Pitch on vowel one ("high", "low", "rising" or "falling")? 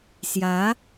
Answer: rising